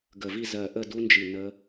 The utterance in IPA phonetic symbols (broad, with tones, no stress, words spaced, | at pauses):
ɡə˧˩vi˥˧ zɜ˧˩ʔə˥˧du˦˥nd͡ʒi˧˩ nə˦˥